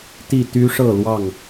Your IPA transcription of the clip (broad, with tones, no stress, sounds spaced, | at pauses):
t̪ i˥˨ t̪ y˦ ʂ ɤ˥˨ l w ɑ˥˨ ŋ